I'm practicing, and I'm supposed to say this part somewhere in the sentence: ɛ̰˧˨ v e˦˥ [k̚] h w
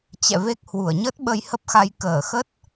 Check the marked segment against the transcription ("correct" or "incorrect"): correct